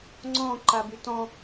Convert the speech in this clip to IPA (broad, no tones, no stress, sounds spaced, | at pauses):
ŋ͡ǀ ɔ̃ ǃ a b y t ɔ̃